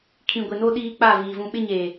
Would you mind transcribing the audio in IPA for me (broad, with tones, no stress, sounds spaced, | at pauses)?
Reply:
kʰ ĩ˨ ɡʷ ɪ˨ n o˦ ɗ iː˦ k͡p a˦˨ v iː˨ v ũ˦ ɓ ɪ˦ ɲ eː˨